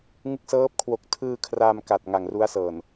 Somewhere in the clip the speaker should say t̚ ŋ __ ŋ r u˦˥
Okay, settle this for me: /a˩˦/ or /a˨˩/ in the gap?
a˨˩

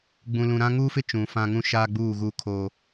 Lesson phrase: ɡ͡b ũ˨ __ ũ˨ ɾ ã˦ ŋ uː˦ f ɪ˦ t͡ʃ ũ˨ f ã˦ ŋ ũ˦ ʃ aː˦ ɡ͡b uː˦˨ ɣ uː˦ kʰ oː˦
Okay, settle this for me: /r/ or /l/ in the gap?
l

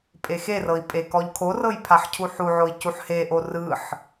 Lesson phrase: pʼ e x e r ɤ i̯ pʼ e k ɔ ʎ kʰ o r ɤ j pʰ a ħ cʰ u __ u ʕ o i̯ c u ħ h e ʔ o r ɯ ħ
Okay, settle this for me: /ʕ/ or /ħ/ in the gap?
ħ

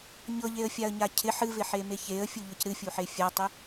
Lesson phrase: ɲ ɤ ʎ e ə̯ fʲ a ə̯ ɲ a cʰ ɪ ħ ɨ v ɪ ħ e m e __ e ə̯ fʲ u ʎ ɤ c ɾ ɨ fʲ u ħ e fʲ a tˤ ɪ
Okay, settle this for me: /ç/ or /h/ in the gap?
ç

